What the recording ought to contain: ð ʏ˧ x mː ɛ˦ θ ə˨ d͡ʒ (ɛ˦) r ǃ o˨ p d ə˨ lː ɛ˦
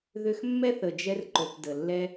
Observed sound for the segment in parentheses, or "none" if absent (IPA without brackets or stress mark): ɛ˧